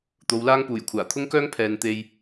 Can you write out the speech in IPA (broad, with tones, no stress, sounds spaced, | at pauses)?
t̪ o˨˧ w l aː˥ ŋ p uː˨˩ j kʷʰ aː˨˩ t̪ʰ ʊ˥ ŋ k œː˥ ŋ pʰ ɛː˨ n t̪ e˧ j